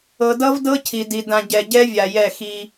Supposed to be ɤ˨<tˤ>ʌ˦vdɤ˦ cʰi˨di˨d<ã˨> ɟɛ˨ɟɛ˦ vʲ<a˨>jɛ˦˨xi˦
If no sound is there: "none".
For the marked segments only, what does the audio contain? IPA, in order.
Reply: d, ã˨, a˨

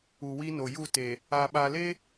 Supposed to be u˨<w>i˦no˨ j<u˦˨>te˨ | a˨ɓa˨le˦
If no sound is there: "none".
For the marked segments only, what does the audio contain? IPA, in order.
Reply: w, u˦˨

